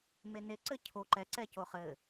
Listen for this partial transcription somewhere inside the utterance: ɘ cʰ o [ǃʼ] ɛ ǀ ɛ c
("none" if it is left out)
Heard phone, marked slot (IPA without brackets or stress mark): ǃ